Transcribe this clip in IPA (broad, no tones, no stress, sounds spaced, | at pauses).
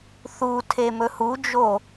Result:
θ u tʰ e m ɵ h u d͡ʒ o